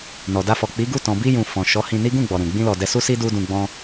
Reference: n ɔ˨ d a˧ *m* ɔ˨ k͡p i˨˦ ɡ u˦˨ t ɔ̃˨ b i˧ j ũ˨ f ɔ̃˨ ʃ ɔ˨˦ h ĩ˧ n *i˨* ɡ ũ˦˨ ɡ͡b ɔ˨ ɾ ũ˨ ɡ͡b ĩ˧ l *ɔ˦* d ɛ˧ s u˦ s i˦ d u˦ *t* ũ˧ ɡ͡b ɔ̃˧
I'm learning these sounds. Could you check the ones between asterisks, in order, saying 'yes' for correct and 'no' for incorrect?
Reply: no, no, no, no

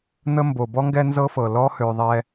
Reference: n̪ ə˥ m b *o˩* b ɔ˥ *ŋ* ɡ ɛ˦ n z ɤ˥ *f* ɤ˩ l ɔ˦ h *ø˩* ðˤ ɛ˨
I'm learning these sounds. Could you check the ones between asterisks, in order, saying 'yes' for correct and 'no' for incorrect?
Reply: yes, yes, yes, yes

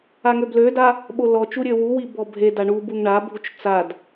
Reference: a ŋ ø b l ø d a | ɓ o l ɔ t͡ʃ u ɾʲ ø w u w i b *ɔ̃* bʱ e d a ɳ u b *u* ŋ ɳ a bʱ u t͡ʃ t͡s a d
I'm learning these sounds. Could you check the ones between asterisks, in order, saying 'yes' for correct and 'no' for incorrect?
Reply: no, yes

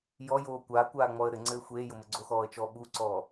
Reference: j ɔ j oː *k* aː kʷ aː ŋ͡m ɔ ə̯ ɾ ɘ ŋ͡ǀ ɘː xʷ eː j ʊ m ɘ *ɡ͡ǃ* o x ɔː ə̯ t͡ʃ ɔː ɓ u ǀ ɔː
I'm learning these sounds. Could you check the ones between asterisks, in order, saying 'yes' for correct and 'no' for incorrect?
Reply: no, no

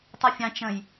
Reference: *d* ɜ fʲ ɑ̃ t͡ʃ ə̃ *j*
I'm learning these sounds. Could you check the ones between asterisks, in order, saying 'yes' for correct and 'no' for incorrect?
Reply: no, yes

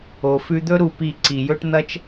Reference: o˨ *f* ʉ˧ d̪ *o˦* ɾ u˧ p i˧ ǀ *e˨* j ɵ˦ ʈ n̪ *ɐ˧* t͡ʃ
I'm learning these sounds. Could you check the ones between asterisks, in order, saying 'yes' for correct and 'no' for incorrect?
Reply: yes, no, no, no

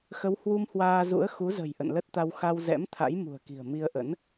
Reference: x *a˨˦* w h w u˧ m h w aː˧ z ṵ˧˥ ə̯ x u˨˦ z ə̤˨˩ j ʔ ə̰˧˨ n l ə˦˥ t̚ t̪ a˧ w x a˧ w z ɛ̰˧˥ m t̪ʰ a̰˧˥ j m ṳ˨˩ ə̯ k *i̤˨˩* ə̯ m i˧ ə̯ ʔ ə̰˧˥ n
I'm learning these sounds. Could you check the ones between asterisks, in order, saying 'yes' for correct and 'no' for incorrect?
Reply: no, yes

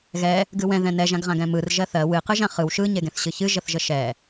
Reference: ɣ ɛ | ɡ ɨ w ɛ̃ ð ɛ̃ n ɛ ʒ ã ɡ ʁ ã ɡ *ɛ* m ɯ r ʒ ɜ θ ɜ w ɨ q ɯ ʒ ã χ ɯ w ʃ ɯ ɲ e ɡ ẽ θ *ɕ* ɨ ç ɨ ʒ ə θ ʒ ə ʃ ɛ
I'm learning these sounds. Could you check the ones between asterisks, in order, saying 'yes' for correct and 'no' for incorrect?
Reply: no, yes

